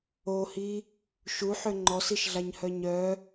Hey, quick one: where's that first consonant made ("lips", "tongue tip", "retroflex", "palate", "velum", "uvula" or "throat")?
throat